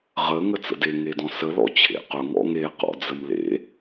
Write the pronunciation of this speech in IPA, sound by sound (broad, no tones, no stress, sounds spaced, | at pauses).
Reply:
ʁ ə ŋ ə t͡s ə̰ d e ŋ e d ɔ̃ s ə l ɔ̰ t͡ɕʰ ḛ q ʊ ŋ ɔ̰ ŋ e q ɔ̰ d͡z ə m l ḛ